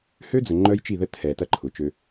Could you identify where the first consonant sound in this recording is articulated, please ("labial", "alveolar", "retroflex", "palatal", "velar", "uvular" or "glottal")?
glottal